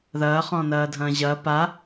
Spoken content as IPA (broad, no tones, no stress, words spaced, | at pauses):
ðɐːχɔ̃nɐːdʱɐ̃ː ʑɐ pa